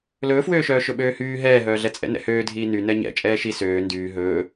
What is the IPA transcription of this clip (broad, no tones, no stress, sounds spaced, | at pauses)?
l ɵː f w øː ʃ œː ʃ ɵ ɓ øː h yː ɦ ɛː ɦ œː ɮ ɛ t͡sʼ ɛ̰ n ɛ̰ h øː dʱ iː n y n ɛ ɲ ɛ̰ t͡ʃʼ ɛː ʃ i s øː n d yː ɦ ɵː